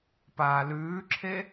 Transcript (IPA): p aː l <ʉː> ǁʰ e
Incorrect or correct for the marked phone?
correct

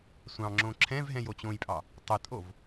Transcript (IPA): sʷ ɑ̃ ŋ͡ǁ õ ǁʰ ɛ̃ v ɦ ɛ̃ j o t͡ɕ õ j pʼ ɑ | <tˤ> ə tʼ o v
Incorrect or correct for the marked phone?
correct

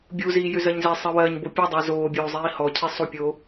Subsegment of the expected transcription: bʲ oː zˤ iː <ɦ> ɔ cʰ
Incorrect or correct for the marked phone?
incorrect: h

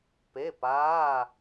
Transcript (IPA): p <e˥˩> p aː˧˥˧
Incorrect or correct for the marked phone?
incorrect: e˧˥˧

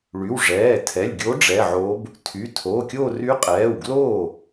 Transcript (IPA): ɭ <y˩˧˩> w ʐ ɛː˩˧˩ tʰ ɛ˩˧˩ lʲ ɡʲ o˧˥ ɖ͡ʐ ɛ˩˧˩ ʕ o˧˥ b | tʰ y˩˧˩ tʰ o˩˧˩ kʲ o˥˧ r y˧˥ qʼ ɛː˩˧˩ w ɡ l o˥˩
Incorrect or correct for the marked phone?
correct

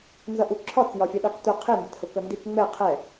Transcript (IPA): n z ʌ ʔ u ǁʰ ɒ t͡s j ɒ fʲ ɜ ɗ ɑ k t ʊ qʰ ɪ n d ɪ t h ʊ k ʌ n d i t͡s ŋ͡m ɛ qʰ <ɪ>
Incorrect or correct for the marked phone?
incorrect: ɛ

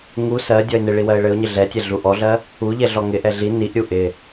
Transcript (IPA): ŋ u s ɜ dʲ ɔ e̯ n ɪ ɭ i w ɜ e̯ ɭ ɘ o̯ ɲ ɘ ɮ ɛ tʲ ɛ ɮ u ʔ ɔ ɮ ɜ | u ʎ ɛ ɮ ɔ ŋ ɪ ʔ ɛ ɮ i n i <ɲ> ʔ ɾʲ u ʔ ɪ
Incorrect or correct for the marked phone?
incorrect: none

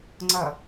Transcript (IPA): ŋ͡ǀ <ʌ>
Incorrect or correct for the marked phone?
correct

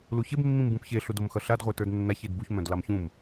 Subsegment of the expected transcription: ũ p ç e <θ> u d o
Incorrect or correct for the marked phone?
incorrect: ɬ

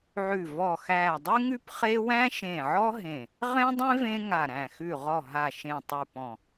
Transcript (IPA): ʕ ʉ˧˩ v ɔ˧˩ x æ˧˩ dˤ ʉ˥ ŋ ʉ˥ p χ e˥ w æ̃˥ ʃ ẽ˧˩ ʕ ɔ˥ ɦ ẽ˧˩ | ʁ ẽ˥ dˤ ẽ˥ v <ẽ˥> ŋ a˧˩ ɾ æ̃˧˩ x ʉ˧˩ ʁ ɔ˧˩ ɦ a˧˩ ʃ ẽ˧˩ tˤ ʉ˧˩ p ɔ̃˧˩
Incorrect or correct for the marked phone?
correct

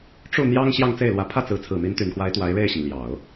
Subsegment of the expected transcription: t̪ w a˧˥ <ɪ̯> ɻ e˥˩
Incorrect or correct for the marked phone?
correct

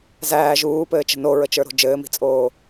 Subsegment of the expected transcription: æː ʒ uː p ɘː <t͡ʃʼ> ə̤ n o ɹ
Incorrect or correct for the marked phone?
incorrect: t͡ʃ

